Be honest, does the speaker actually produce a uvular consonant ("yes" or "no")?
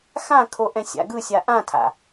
no